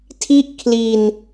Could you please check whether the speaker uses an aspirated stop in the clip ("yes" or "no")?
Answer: yes